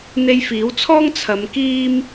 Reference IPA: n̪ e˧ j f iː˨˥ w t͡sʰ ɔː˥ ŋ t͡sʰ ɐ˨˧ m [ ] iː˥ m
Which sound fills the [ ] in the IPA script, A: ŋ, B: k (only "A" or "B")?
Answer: B